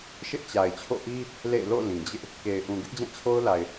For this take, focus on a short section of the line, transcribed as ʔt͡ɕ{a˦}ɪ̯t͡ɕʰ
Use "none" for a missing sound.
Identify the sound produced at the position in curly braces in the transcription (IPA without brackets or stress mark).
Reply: a˨